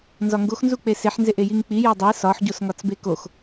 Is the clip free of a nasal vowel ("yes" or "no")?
yes